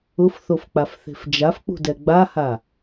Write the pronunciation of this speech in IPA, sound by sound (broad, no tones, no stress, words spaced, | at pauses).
ʊfθofk͡pafθe̤f d͡ʒafk͡pṳdɛ ɡ͡baha